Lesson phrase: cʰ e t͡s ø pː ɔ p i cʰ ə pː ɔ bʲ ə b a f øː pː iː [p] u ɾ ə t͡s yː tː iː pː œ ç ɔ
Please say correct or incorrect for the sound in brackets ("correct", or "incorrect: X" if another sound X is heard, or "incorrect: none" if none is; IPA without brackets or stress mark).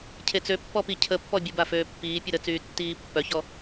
incorrect: pʲ